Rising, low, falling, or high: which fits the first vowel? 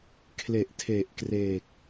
low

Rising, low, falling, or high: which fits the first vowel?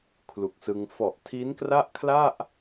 low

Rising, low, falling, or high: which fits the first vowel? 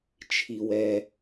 low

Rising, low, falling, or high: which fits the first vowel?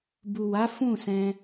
low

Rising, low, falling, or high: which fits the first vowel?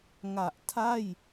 low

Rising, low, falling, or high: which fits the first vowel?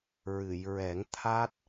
low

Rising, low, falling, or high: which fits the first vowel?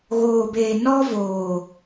low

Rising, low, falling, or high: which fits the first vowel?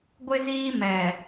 high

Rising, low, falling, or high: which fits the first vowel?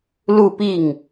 falling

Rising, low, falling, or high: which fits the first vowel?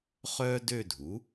high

